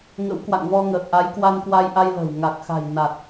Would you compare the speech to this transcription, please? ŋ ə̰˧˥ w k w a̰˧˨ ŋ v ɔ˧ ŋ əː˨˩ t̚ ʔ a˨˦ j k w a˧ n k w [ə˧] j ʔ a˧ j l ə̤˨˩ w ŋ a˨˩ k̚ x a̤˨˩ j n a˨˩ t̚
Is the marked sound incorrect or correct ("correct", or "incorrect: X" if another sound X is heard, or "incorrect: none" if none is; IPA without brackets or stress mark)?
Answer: incorrect: a˧